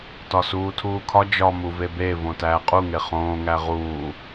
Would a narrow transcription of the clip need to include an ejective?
yes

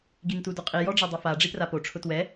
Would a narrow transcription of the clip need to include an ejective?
yes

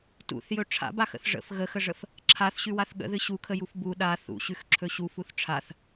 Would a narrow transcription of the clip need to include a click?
yes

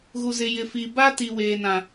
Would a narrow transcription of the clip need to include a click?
no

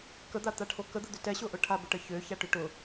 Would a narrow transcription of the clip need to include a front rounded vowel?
yes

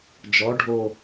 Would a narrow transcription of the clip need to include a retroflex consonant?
yes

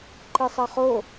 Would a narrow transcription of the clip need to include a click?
yes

